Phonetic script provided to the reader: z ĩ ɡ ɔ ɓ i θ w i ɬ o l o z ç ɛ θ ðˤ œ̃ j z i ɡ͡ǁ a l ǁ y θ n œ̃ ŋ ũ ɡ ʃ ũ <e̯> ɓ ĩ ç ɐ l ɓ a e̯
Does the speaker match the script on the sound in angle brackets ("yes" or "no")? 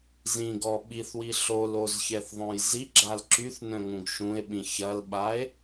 yes